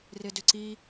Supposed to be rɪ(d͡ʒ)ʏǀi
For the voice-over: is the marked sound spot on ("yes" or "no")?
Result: no